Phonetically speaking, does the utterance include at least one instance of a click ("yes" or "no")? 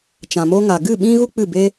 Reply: no